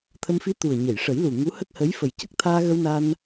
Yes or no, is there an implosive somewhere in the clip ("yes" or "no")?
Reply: no